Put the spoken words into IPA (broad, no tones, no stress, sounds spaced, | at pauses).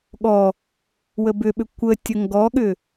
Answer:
ɠ ɔ | w ə b ʏ ɓ ʏ kʷ ə tʲ ə ŋ ɡ ɔ ɠ ʏ